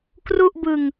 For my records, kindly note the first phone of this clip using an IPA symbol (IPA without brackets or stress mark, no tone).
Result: k